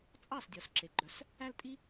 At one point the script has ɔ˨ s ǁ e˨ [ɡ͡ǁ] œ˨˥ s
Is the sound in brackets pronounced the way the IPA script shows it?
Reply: no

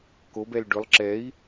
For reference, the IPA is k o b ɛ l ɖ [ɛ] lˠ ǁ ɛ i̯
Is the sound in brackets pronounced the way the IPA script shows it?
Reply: no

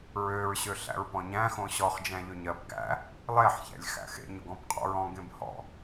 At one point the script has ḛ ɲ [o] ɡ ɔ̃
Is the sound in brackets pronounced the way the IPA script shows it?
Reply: yes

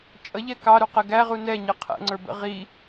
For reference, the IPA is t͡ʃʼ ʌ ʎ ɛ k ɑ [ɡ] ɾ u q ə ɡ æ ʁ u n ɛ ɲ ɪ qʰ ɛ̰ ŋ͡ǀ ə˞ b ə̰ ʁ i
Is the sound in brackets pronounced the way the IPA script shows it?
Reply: no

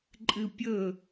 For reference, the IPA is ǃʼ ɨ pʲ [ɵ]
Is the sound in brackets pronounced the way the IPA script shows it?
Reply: yes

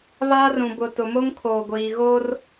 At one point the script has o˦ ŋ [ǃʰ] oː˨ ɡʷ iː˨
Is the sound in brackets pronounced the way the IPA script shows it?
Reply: no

